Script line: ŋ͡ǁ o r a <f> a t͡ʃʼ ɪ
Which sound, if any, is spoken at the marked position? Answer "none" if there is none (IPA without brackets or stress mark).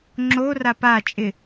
p